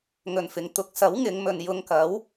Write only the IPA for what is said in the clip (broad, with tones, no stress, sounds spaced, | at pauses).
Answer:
ŋ ɵ˨ n f ɪ˨˧ ŋ t̪ ʊ˨˥ k̚ s ɐ˨˥ w ŋ ɪ˨˧ ŋ m ɵ˨ n j ʊ˧ ŋ k ɐ˨˥ w